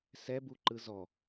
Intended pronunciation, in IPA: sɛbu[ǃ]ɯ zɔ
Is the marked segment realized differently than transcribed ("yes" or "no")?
no